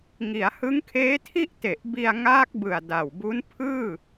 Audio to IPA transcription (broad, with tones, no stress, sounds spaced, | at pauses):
ŋ i˩˦ a̯ h ɯ˦˥ ŋ kʰ eː˦˥ tʰ i˥˩ ʔ t e˨˩ ʔ b i˧ a̯ ŋ aː˦˥ k̚ b ɯ˨˩ a̯ d a˨˩ w b u˦˥ n pʰ ɯː˥˩